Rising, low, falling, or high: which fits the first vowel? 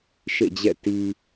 falling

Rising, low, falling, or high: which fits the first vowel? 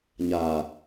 low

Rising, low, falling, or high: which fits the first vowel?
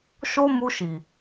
high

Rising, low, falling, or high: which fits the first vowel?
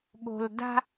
high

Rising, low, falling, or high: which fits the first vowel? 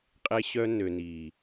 high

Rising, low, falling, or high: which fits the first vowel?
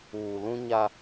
low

